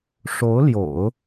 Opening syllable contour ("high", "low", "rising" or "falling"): rising